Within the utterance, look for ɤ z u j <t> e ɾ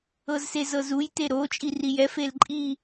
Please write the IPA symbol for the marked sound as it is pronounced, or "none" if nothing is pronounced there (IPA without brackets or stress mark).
t